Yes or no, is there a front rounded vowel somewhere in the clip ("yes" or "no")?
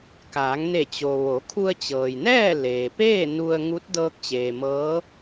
no